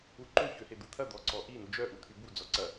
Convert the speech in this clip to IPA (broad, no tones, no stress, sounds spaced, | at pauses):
u ǃ ø ç ø h e d̪ u t̪ʰ ɐ d̪ ɔ ǀ ɔ ʔ i n u d͡ʒ œ ʔ u t̪ʰ y b u d͡z ɔ ǀ ɐ